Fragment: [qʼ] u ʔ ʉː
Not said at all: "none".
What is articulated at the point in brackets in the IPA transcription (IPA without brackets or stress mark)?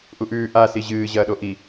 ʔ